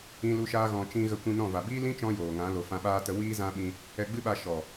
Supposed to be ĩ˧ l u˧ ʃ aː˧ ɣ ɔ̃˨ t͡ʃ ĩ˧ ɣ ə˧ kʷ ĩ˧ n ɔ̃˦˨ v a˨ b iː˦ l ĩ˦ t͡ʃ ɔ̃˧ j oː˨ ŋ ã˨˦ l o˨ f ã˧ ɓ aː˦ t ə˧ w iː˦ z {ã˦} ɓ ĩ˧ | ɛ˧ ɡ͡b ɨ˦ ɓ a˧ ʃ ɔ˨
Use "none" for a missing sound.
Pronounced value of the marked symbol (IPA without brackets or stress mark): ã˦